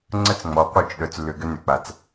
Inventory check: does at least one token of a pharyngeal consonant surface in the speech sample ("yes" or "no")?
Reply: no